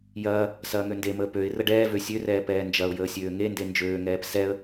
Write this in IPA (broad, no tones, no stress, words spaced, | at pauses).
jɐː | sɐːŋøndeməː pøɪ̯ rəɖɛːvø sʲørɛː pɛːnd͡ʒɐʊ̯jəː sʲøːŋende nd͡ʒøːŋɛːp sɛə̯